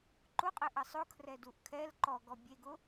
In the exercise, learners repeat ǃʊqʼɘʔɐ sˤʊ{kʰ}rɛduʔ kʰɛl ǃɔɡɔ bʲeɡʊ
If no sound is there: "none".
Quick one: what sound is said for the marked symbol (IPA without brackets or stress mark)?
kʰ